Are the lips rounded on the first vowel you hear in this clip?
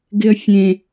no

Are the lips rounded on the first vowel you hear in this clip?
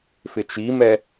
no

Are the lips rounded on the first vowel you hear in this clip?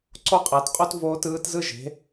yes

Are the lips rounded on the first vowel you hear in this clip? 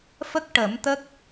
no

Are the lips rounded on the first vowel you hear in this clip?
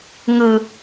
no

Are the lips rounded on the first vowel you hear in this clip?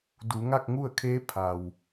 yes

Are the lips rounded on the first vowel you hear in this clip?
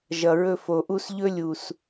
no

